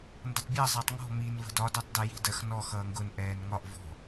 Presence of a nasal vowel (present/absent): absent